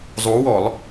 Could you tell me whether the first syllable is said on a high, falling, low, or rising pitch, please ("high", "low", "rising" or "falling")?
rising